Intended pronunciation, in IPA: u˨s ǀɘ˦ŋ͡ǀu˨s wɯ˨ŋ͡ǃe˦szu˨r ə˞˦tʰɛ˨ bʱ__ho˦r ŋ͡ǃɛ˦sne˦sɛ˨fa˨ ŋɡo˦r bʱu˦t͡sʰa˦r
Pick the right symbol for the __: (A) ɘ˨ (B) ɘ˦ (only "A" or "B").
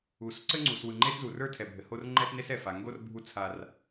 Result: A